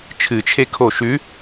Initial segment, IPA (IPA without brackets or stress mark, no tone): t͡ʃʰ